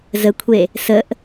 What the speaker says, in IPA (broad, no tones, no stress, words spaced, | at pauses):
zəkʷʰe | səʔ